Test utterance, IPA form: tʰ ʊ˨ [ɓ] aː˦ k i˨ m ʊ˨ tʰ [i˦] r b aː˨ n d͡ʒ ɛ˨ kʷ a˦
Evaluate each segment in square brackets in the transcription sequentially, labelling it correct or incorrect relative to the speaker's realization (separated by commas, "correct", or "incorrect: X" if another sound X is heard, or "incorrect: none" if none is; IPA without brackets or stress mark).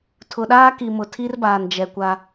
incorrect: ɗ, correct